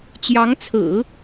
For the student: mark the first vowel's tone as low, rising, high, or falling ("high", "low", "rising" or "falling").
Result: rising